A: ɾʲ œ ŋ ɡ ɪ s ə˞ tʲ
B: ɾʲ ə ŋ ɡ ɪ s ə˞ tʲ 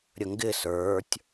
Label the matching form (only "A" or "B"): B